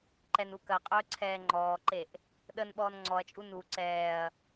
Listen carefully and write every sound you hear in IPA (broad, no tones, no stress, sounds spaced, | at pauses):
ǃ ɛ n u k ɐ qʼ ɵː ǀʰ ɛː ŋ͡ǃ ɔː ǃ e ʔ | ɗ ə n ɓ ɔː n ŋ͡ǀ ɔ ɐ̯ t͡ʃʼ u n u ǀ ɛː ɐ̯